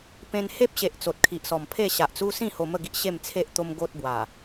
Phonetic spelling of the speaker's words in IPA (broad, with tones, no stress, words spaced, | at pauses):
pẽ˧nhe˦p̚ɕe˨ʔ t͡so˨t̚kʰi˨ʔsɔ˨˩mpʰe˥˧ ɕa˨ʔt͡su˦ sĩ˥˧ ho˧mə˥˧ɡi˦ʔ ɕe˥˧mt͡sʰe˦ʔ t̪o˧m ɡo˦t̚bwa˨˩